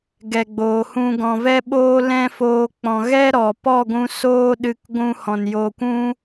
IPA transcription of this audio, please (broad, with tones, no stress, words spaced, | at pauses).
ɡɛ˨ɡ͡boː˨hũ˧ ɡɔ̃˨vɛ˧ɓoː˧ lɛ̃˦foː˧ k͡pɔ̃˨ɣɛ˦ ɾɔ˨pɔ˦˨ɡʷũ˧ soː˦ɗɨ˧k ɡʷũ˧hɔ̃˨n jo˧kʷũ˦